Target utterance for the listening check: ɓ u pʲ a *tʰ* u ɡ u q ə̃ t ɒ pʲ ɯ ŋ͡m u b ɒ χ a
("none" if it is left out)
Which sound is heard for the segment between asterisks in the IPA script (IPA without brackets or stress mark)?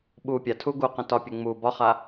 tʰ